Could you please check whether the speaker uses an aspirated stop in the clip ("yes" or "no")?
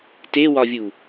no